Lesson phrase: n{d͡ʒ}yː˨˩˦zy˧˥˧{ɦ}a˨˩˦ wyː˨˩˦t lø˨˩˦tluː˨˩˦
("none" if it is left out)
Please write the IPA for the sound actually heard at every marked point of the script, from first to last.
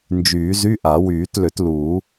d͡ʒ, ʔ

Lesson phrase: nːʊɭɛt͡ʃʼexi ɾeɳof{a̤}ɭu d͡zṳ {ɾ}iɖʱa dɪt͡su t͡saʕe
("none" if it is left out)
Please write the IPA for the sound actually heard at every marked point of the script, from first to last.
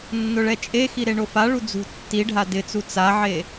a, tː

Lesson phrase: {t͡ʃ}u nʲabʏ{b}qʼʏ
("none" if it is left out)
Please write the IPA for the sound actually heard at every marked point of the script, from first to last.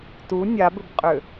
t, b

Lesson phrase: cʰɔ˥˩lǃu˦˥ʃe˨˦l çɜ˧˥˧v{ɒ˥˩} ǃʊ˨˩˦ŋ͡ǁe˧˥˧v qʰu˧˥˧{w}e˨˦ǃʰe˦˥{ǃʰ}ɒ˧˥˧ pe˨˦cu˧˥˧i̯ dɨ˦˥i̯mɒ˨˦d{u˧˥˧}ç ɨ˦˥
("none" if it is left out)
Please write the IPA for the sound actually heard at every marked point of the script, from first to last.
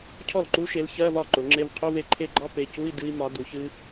ɒ˥˩, v, ɡ͡ǃ, u˨˩˦

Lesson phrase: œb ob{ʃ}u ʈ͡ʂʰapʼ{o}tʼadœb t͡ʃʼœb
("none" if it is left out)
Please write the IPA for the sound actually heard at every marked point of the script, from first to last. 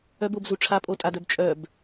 z, o

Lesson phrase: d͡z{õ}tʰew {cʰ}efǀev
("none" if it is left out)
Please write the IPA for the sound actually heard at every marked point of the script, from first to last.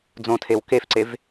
õ, k

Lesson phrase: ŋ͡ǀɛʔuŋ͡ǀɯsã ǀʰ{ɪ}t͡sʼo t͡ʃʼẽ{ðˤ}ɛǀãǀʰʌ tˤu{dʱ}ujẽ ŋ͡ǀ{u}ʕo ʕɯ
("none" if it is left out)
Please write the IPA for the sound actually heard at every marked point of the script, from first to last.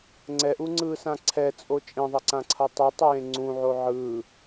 ɛ, ðˤ, tˤ, ũ

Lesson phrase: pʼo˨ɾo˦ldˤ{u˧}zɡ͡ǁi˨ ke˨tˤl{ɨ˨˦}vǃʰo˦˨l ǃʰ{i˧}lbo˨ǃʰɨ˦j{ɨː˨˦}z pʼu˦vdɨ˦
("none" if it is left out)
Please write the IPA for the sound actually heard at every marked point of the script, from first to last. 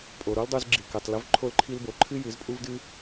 u˧, ɨ˨˦, i˧, ɨ˨˦

